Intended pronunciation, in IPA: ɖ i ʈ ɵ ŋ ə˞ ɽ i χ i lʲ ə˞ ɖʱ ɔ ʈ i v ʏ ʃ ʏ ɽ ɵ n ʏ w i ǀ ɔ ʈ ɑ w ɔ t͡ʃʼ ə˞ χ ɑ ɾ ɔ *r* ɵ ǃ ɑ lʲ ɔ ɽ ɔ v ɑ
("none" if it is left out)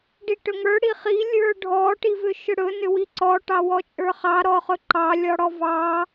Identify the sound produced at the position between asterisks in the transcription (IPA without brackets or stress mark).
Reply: χ